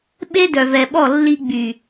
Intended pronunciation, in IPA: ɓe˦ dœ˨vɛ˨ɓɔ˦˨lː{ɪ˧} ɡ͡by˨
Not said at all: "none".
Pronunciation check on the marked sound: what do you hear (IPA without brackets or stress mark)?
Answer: i˧